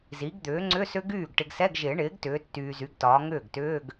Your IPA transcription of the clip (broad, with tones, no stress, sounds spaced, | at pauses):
z i˩˥ ɡ d̪ ʏː˩˥ ŋ͡ǀ ʏ˧˥˧ s ʏ˦˥ ɡ yː˥˩ ɡ ʈ ɪ˨ ɡ s ɛ˧˥˧ ɡ ʒ ɪː˨˩˦ ɳ ɪː˩˥ ɡ t ʏː˩˥ tː yː˨ z y˩˥ ɡ t ɒː˩˥ ŋ ʏː˥˩ ɡ t ʏː˧˥˧ ɡ